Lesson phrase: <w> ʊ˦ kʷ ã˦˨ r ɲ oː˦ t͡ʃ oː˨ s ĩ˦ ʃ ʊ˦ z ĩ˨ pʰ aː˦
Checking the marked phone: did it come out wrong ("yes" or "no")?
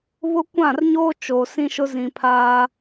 yes